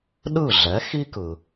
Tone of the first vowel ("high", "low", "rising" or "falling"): falling